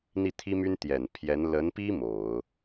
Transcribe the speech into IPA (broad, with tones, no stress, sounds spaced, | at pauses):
n̪ i˥˩ t̪ʰ i˥ m y˥ n t̪ j ɛ˨˩ n pʰ j ɛ˧˥ n l ə˧˥ n p i˥ m o˨˩˦ ʊ̯